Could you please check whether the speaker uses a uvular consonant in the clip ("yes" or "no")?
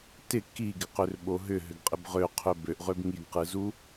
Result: yes